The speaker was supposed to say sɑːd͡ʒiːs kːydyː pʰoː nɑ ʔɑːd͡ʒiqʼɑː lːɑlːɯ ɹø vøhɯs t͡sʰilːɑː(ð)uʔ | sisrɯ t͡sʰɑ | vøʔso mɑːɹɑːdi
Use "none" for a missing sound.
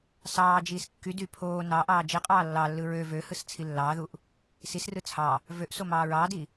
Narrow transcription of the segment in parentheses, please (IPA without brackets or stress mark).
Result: ð